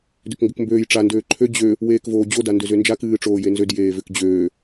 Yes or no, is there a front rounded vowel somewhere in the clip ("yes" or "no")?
yes